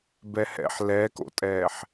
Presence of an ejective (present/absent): present